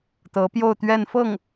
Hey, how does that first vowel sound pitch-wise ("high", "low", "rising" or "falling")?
rising